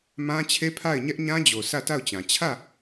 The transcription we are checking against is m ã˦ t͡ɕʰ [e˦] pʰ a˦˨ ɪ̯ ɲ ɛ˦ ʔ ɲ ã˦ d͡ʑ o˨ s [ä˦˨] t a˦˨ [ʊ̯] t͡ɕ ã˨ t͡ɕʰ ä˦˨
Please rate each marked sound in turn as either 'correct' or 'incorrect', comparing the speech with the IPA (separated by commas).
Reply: correct, correct, correct